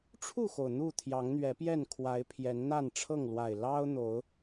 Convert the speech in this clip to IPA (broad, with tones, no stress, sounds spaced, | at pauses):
ʈ͡ʂʰ u˥˨ x o˩ ʊ̯ n̪ u˥˨ t̪ʰ j ɑ˨˦ ŋ n̪ ɥ ɛ˨˦ p j ɛ˥˨ n kʰ w a˨˦ ɪ̯ pʰ j ɛ˨˦ n n̪ a˥˨ n ʈ͡ʂʰ ɤ˥˨ ŋ l w a˨˩ ɪ̯ l ɑ˦ ʊ̯ n̪ o˨˦ ʊ̯